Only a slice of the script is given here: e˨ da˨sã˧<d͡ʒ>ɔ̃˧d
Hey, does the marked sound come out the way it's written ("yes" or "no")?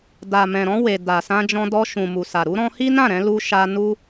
yes